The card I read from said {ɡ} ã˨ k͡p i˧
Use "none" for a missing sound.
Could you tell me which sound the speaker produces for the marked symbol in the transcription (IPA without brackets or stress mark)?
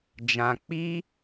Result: d͡ʒ